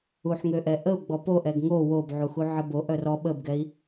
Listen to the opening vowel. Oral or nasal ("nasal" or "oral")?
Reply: oral